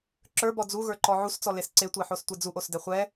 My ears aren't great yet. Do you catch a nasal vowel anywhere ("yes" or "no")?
no